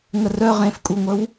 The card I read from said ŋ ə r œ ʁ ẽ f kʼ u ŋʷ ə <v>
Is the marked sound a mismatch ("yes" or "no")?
yes